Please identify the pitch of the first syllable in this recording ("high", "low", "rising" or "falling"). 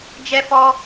high